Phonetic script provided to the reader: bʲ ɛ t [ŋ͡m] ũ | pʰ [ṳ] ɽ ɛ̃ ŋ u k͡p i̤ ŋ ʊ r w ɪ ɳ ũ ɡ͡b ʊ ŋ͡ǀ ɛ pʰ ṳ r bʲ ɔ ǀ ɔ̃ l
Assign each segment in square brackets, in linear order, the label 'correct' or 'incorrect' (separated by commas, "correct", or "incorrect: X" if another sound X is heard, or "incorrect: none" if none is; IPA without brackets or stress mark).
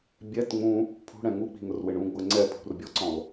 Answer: correct, correct